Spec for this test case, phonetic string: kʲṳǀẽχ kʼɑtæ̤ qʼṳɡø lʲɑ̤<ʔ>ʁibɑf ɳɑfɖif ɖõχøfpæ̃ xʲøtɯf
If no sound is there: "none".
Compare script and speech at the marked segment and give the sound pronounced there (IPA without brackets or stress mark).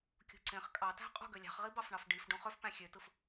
χ